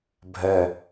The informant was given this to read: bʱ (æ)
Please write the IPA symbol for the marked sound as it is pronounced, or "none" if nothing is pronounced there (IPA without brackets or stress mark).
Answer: ɛ